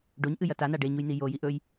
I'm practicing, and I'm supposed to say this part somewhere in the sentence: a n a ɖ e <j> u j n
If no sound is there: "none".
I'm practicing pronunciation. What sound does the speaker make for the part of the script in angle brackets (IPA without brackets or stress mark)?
ɲ